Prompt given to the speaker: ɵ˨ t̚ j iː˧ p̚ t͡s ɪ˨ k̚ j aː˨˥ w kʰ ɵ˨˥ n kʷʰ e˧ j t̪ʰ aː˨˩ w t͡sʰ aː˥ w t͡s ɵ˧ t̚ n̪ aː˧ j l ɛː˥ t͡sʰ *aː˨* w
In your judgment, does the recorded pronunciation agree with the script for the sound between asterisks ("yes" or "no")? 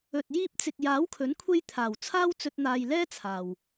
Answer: yes